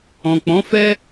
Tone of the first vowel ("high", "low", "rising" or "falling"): low